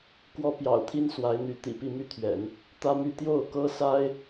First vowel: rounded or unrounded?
rounded